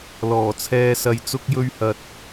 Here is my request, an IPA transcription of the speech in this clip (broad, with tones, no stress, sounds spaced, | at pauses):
l ɔː˨˩ t͡sʰ ɛː˧ s ɐ˧ j t͡s ʊ˧ k̚ j ɵ˧ ɥ h ɐ˨ t̚